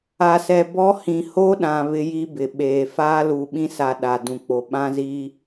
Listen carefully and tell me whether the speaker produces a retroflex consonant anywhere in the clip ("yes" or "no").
no